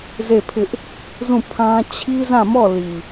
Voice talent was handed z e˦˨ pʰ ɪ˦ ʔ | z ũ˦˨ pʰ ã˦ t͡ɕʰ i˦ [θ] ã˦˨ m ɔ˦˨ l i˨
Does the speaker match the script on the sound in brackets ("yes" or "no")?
no